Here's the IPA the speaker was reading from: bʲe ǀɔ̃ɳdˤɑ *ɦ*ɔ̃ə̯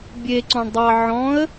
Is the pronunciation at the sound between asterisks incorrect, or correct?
incorrect: ʕ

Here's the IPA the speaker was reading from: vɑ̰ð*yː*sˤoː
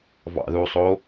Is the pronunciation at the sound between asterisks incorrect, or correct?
incorrect: uː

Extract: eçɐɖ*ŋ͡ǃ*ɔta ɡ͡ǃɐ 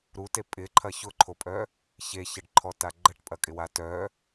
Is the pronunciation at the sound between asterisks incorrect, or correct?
incorrect: ǃʰ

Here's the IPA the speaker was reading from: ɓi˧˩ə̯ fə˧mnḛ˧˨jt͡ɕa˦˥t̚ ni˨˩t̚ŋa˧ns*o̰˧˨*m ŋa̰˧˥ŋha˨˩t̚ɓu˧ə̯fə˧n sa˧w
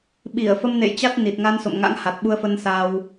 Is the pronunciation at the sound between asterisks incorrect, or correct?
correct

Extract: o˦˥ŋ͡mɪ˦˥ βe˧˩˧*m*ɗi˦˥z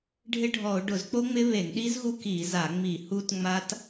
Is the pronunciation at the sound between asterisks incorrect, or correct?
incorrect: ŋ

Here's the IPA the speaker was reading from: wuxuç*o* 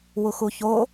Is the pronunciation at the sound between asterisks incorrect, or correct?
correct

